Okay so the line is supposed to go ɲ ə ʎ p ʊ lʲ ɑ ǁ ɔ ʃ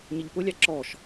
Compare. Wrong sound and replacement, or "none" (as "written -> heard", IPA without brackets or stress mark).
none